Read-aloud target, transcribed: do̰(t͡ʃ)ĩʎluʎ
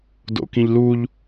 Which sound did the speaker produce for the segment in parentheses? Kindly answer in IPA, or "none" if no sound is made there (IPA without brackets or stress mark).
k